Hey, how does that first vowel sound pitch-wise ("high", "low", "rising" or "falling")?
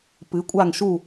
rising